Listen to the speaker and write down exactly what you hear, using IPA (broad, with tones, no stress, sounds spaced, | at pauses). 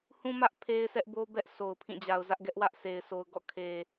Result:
h ũ˦ m ä˦ ʔ pʰ e˦ ɪ̯ s ɛ˦ ʔ b o˦ b ɛ˦ ʔ s o˨ ʊ̯ pʰ ĩ˦˨ d͡ʑ a˨ ʊ̯ z ä˦ ʔ ɡ ɛ˦ ʔ w ä˦ ʔ s e˨ ɪ̯ sʰ o˨ ʊ̯ ɡ ɔ̰˦˨ kʰ e˨